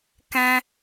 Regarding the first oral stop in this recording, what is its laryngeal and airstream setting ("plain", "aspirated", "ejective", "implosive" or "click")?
plain